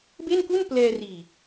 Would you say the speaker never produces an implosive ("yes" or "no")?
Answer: yes